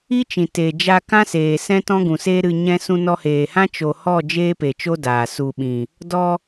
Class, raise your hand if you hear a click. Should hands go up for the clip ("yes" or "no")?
no